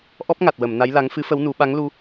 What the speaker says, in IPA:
ʔ ɔ˦˥ p̚ ŋ a˨˩ t̚ w ə˨˩˨ m n a˧˥ j l a˧˥ ŋ f ɨ˧˥ f ə˧˥ w n u˨˩˦ ɓ a˧˥ ŋ l u˧

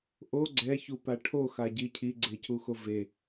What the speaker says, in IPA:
ʔ o ɡ͡ǀ ɛ ç u p a ʈʰ o x a ɟ i cʰ i ɡ͡ǀ e c u x o v e

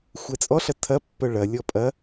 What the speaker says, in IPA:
xʷ ɛ t͡sʼ ɔ ɬ ɐ tʰ ɐ pː œ ɭ ɐ lʲ ɔ pʼ ɐ

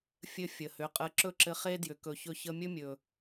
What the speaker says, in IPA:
fʲ ɘ˧ fʲ ə˨ h ʏ˨˦ qʼ ə˧ ǁ ɵ˦˨ ǁ ɘ˧ χ e˦ d j ʏ˨ k ɵ˨ ç ɵ˧ ç ə˧ mʲ ɵ˦ mʲ ɵ˨

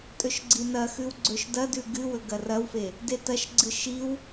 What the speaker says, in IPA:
tʼ ɵ ʃ ɡ͡ǀ i n ɐ x ʉ w ɡ͡ǀ ɵ ʃ d ɐ d ʉ ɡ ɨ w ɵ ɡ ɐ r ɐ w f e | d e t ɐ ʃ ɡ͡ǀ ɨ ʃ i w

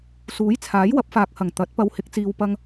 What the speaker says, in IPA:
s uː˨˥ j t͡sʰ aː˨˥ j w ɐ˨˥ p̚ f aː˨ k̚ h ɐ˨˩ ŋ t̪ ɐ˨˥ t̚ p ɐ˧ w h ɪ˨˥ k̚ t͡s iː˧ w p ɐ˧ ŋ

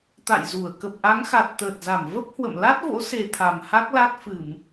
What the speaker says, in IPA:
t̪ a̰˧˨ j z u˧˩ ə̯ k ə˨˩ p̚ ʔ a˨˦ ŋ x a˨˩ t̚ t̪ əː˨˩ t̚ z a˧˩ m v ə˦˥ p̚ h w ə̰˧˨ m l a˦˥ t̚ v o̰˧˥ s e˨˩ t̪ʰ a˨˩ m h a˦˥ k̚ l a˦˥ t̚ f ɨ˧˩˨ m

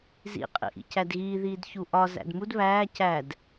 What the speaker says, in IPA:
z ḭ qʼ ḭ ʔ ḭ c æ d ɣ iː ð iː d ç u ʔ ɒ z æ̰ d m u d β æː c æ d

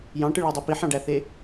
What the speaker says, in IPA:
j ɑ̃ ʈ ɯ ɭ ɑ dˤ o p i ħ ɑ̃ ɖ æ θ e

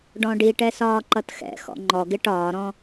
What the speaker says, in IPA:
ɖ ɔ̃ ɖ i ʈ ɛ s ɒː ǃ ʌ t x ɛ̰ x ɔ̰ ŋ͡ǃ ɔ ɡ ɪ ʈ ɒː ɾ ɔ̃

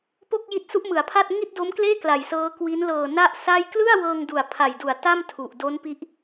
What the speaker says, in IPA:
p o˥˩ k̚ j i˦˥ t̚ s u˦˥ ʔ m ɯ˩˦ a̯ pʰ a˥˩ t̚ ŋ i˥˩ t̚ d o˦˥ m k l eː˥˩ k l a˨˩ j s ɤː˦˥ k w i˦˥ n l ɤː˨˩ n a˥˩ ʔ s a˥˩ j k l ɯ˥˩ a̯ w ɤː˧ ŋ d u˨˩ a̯ pʰ a˨˩ j d u˨˩ a̯ t a˥˩ m tʰ u˨˩ ʔ d o˦˥ n p i˦˥ ʔ

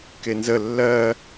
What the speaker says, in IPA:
k e n z ə lː ɜ

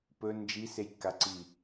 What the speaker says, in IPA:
p ɵ n d͡ʒ i s e j kː a ǀ i

